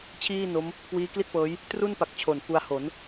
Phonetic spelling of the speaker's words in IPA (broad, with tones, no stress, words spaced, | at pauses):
t͡ɕʰiː˥˩no˦˥m | kwiː˦˥kli˥˩t̚pɤː˦˥j | tru˥˩npa˨˩k̚ t͡ɕʰo˨˩nfu˧a̯ ho˩˦n